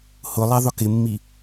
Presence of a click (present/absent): absent